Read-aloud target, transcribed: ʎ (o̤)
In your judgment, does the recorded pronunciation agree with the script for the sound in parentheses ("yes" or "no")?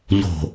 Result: yes